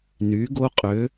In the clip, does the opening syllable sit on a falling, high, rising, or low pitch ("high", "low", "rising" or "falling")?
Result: rising